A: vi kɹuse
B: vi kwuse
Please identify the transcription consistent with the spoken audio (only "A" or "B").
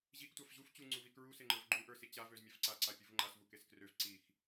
A